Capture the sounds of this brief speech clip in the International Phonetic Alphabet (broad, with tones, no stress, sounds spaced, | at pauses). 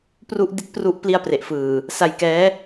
p r u˥˩ ʔ d i˦˥ t̚ p r u˦˥ ʔ p l i˥˩ a̯ p r e˨˩ ʔ f ɯː˨˩ | s a˧ j k ɛː˦˥